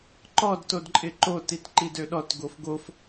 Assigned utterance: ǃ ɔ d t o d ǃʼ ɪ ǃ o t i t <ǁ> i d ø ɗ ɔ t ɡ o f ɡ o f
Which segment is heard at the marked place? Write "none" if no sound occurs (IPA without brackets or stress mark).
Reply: ǃ